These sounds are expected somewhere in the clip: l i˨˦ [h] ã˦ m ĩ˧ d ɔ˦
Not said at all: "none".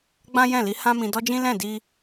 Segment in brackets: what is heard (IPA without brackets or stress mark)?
h